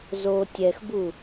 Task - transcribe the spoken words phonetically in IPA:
z o tʲ ɛ x b u

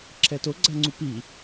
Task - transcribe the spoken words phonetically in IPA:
ǁʰ ɛ t o ɡ͡ǀ a ŋ͡ǀ u p i

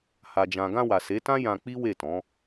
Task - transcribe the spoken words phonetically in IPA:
h a˨ d͡ʒ ã˨ ɡ ã˧ w a˨ s e˨˦ t ã˦ j ã˧ k͡p i˦ w e˦˨ t ɔ̃˨˦

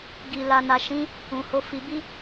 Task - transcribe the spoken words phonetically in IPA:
ɡ i˨ l a˨ n a˨ ʃ ĩ˨˦ | ũ˨ h o˨˦ f i˧ b i˦

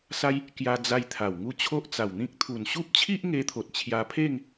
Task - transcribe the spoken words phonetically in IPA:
s a˦ j | k j a˧ d͡z a˧ j t̪ʰ a˨˩ w ŋ u˥˧ t͡ɕʰ o˦ ʔ t͡s a˨˩ w n̪ ĩ˦ k̚ t̪ʰ u˨˩ n ɕ u˦ p̚ t͡ɕʰ i˦ ʔ ŋ e˧ t̪ʰ o˨ t̚ t͡ɕʰ j a˧ pʰ e˥˧ ŋ

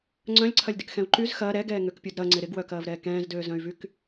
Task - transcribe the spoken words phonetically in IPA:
ŋ͡ǀ œ̃ lʲ ǀʰ ɐ lʲ d ɪ k x ɛ̃ u̯ ǃ y z x ɐː ɾ ɛ ɡ ɛː ŋ ø k pʲ u d ɾ ɐ ŋ͡ǀ ɪ ɾ ɪ ɡ w œ k ɐː v ɾ ɛː k ɛ̃ː z d øː z œ̃ y̯ v y k

